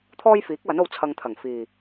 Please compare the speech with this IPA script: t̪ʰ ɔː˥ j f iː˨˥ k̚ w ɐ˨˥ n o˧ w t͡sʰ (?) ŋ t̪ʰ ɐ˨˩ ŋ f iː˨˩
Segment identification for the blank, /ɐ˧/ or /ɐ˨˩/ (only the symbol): ɐ˧